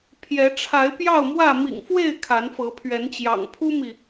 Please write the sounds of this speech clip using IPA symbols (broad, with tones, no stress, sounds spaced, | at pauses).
pʰ j ɛ˨˦ ʈ͡ʂʰ a˨˦ ɪ̯ p j ɑ˥˨ ʊ̯ m w ä˥˨ m ḭ˨˩ ŋ f w e˥˨ ɪ̯ kʰ a˨˦ n f ɤ˨˦ pʰ ɥ ɛ˨˦ n t͡ɕ j ɑ̰˨˩ ŋ pʰ u˦ m i˨